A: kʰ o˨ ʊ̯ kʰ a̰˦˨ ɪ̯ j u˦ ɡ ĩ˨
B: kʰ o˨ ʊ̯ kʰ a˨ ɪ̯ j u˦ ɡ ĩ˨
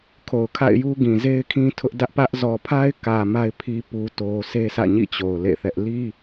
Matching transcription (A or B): A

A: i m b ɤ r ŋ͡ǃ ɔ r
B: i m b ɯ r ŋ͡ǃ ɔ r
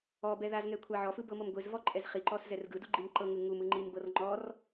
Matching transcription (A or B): A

